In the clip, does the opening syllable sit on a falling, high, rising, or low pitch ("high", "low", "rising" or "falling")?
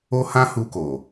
high